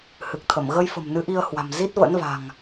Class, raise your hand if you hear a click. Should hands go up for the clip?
no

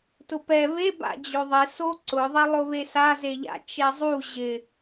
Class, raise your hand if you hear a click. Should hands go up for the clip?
yes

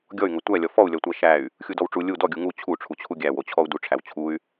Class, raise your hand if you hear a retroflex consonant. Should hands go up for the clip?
yes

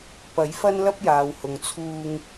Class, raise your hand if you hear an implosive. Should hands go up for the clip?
no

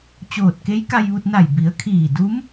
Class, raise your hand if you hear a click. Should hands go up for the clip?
no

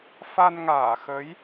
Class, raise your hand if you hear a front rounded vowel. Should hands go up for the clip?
no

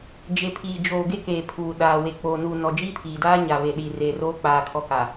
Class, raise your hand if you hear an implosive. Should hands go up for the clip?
yes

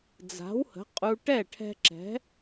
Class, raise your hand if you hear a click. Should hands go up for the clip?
yes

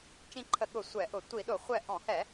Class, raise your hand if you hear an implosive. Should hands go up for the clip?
yes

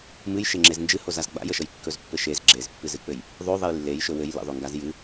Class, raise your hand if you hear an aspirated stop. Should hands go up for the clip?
no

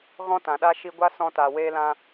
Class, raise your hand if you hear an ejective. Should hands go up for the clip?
no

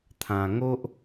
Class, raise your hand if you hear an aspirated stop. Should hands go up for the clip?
yes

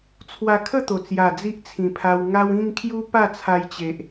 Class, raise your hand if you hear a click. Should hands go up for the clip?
no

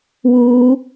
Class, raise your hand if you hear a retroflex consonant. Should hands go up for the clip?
no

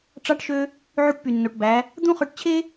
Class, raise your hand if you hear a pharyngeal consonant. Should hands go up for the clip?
yes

